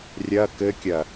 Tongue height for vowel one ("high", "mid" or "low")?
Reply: low